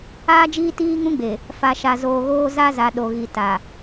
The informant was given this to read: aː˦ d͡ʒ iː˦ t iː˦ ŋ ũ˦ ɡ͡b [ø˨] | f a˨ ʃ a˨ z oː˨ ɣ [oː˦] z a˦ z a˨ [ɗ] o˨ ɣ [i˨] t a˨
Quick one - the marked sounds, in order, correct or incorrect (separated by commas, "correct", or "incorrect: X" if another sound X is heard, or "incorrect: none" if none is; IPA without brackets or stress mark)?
incorrect: e˨, correct, correct, correct